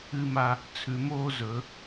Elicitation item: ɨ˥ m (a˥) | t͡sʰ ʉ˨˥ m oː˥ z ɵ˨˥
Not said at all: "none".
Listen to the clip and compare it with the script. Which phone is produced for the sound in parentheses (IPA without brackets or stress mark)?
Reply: a˥